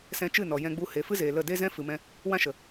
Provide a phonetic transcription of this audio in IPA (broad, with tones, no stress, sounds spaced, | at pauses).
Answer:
s ɛ̃˧ t͡ʃ ɨ˦˨ n ɔ˨ j ɛ̃˧ ɡ͡b u˧ h e˨ f ɨ˦ z eː˨ l ə˦˨ d e˦ z ɛ̃˦ f ɨ˨ m ɛ̃˧ | w ã˦ ʃ ə˨